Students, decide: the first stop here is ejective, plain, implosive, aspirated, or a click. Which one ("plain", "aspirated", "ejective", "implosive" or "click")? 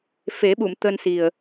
implosive